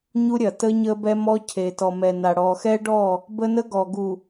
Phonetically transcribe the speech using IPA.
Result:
ɲu˦ɾʲɐ˨ tə˦ɲə˦ bɛ˦mɔ˦ cʰe˨tɔ˨ mɛ˨ na˨ ɽɔ˨xɛ˦ɖɔ˦˨ | bə˦nə˦ ɡɔ˨ɡu˨

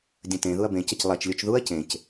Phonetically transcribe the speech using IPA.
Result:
dʲə̃tẽ ðuɐ̯bẽ cəclˠɛt͡ʃ lʲut͡ʃðuɐ̯ cẽc

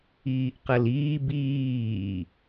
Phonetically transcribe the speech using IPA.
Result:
iːʔqəliː biː

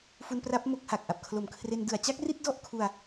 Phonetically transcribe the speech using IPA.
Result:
fu˧npra˦˥p̚ mo˥˩k̚ha˨˩k̚ ʔa˨˩p̚kʰlo˨˩mkʰre˧n dɯ˨˩a̯t͡ɕa˥˩k̚ri˥˩t̚ dɔ˥˩ʔkʰu˧a̯

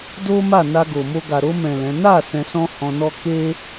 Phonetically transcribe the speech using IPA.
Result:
do˦ma˦˨ na˧ɡo˨mo˧ ɡa˨ ɾo˧mɛ̃˨ lɛ̃˨˦ na˦˨ sɛ̃˧sɔ̃˦hɔ̃˧nɔ˦ ke˦

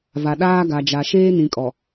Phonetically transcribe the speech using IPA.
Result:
va˨ ɗaː˦ɡa˨d͡ʒa˨ ʃeː˦nĩ˨kʼɔ˨

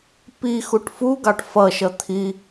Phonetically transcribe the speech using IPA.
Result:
pi xuʈfuɡɑʈ fʌʃʌ t̪ʰi

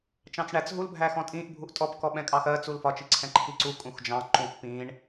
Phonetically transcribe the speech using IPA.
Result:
t͡ʃɑ̃t͡sɳæt͡s ɦul bʱæxɔ̃tʼĩʔ bʱuʔtʼɔp kɔɓɛ̃kʼɑxɜ t͡sulfɒ t͡ʃiǀʰɛ̃ǃʰiǀu kʼũxd͡ʒɑ̃ ǃũʔ pĩɳ

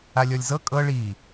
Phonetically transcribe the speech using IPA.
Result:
alʲɔlʲzɤ kʼɤ ɭi

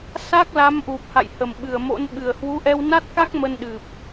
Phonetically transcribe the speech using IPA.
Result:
sa˦˥k̚la˨˦mʔu˨˩p̚ha̰˧˨j hə˨˩mɓɨ˨˩ə̯mo̰˧˥nɓɨ˨˩ə̯ hwu˨˦ʔɛ˧wna˦˥t̚ka˦˥k̚ mə˧nɗɨ˨˩p̚

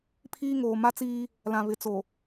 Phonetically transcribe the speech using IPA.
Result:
pʰiː˦ŋoː˨ ma˦t͡siː˦ | lã˨βɪ˨t͡so˨

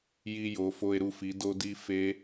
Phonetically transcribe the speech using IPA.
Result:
ji˧jo˩˧fo˧e̯ɾu˧f i˩˧do˧di˧ fe˦˥

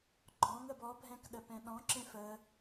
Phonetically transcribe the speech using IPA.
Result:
ɡ͡ǃɔ̃ŋəb ɔbʱɛ̃kɗəpɛ̃ ɗɔ̃ǁẽf ə

